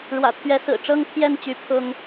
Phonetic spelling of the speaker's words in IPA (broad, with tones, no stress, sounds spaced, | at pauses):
ɻ w ä̰˨˩ t̪ʰ ɥ ɛ˨˦ s ɹ̩˨˩ ʈ͡ʂ ɤ˦ ŋ t̪ʰ j ɛ˥˨ n t͡ɕ y˨˦ pʰ ʊ˦ ŋ